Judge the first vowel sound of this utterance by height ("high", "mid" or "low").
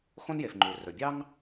mid